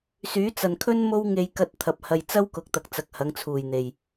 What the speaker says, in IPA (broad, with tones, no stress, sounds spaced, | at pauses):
s yː˨˥ t͡s ɐ˨ n kʰ ɵ˥ n m o˥ w ŋ e˧ j k ɐ˧ t̚ t̪ʰ ɐ˨ p̚ h ɐ˨ j t͡s ɐ˥ w k ʊ˨ k̚ t̪ ɐ˨ k̚ t͡s ɐ˨˥ k̚ h ɐ˨˥ ŋ t͡sʰ uː˨˩ j n̪ e˨˩ j